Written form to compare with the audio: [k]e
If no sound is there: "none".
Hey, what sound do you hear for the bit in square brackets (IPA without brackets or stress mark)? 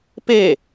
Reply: p